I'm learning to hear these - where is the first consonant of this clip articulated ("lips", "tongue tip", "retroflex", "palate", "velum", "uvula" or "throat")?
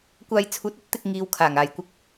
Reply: velum